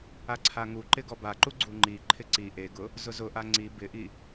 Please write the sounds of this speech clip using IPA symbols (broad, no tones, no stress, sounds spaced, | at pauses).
a ǀʰ a ŋ u ǃ ɪ ɡ ɔ b a ǃ u ɡ͡ǀ u ŋ͡ǃ i ǃʰ ɪ ǀ i ʔ e ɡ ʊ | z ʊ z ʊ ʔ a ŋ͡ǀ i b ɪ ʔ i